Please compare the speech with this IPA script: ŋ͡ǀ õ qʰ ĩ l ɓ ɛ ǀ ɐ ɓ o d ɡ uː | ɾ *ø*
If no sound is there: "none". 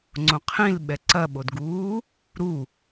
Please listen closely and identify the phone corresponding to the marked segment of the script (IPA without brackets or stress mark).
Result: u